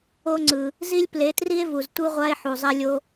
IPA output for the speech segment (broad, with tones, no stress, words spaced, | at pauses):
o˧ŋ͡ǀɯ˨ | zi˦lʲple˨˦tri˦e̯vu˨z tʷɯ˧ʁʷa˧e̯ ħu˨zˤɛ˦lʲo˦